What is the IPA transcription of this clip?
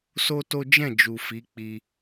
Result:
s o˦ t o˦ d͡ʒ ɛ̃˦˨ d͡ʒ u˨ f i˨˦ k͡p i˧

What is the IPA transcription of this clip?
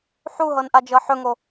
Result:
ħ u ɦ ɤ n ʔ a d͡ʒ ɤ ħ ɵ ŋ o

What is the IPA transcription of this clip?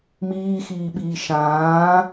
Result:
m iː x iː ɓ iː ʃ ãː

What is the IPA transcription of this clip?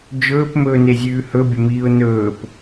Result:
d͡ʒ ɵː p m ɵː n e zʲ ʉː h ɵ bʲ ɐ m iː ʊ̯ n ɵː p

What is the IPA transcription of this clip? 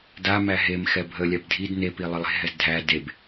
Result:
d a m æ ɦ e m x ɛ bʱ ə lʲ a b dʱ i d n e p i lˠ ə lˠ e̤ ɦ ɛ z dʱ æ d e b

